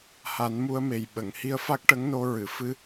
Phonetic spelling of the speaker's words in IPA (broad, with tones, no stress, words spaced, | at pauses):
ha˨˩˦n mu˧ə̯me˨˩j ɓə˨˩˨ŋhi˧ə̯ fa˦˥k̚ʈə˧˥ŋno˧ ɹɨ˨˩˨ fɨ˧